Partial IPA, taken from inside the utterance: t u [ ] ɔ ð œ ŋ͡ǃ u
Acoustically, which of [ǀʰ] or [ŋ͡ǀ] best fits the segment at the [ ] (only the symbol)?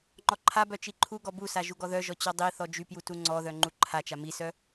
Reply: ŋ͡ǀ